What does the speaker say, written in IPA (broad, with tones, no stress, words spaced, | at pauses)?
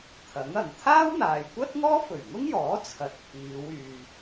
t̪ʰɐ˨˥ŋɐ˨ŋ t̪ʰaː˥wn̪aː˨jkʷɐ˥t̚ ŋɔː˥fɵ˨˩ɥŋʊ˥ŋjɔː˨˥ t͡sʰɐ˨t̚ pʰiː˨˧wyː˨